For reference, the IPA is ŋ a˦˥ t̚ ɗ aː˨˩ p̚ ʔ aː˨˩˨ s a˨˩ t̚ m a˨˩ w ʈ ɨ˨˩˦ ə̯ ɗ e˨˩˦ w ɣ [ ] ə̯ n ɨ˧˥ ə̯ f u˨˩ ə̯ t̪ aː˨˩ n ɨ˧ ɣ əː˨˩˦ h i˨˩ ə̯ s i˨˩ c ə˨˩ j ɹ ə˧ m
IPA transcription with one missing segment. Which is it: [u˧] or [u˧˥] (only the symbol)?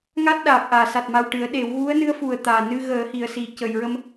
u˧˥